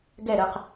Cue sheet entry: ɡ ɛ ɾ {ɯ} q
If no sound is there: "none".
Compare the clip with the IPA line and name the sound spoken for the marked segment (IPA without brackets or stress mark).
ɯ